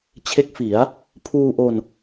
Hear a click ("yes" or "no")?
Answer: no